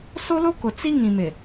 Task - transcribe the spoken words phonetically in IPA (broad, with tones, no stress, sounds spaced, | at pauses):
s o˦ l o˦ k ʊ˨ t͡s i˦ ŋ ĩ˨ m ɪ˨